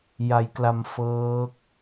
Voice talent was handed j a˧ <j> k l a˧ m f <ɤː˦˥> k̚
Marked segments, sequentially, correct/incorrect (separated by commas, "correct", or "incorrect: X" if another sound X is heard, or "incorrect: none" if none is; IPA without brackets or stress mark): correct, correct